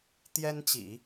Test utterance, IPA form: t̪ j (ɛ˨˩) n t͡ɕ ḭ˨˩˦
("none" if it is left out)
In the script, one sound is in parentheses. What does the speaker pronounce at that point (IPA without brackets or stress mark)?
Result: ɛ˥